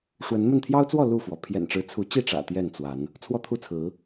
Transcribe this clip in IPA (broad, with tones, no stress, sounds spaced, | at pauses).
ʂ w ə˨˦ n m ə˥˨ n t̪ʰ j ɑ˦ ʊ̯ t͡s w ɔ˥˨ l u˥˨ f w ɔ˩ pʰ j ɛ̰˨˩ n ʈ͡ʂ ɻ̩˨˦ t͡sʰ u˨˦ t͡ɕ i˥˨ ʈ͡ʂ ä̰˨˩ t̪ j ɛ˥˨ n t͡s w a˨˦ n | t͡sʰ w ɔ˦ t̪ʰ u˥˨ t͡sʰ ɹ̩˨˦